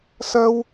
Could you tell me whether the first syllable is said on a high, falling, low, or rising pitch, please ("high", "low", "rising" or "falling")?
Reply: high